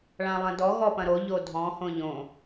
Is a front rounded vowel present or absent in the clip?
absent